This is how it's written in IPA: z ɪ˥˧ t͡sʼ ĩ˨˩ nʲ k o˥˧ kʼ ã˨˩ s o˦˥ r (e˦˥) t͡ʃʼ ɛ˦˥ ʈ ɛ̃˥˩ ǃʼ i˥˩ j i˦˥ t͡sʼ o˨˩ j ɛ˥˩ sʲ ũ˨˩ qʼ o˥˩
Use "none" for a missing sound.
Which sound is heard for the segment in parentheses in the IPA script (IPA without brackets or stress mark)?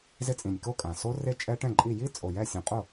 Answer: e˦˥